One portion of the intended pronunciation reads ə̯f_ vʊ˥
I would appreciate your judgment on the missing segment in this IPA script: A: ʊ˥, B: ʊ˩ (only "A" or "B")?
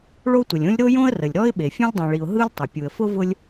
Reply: A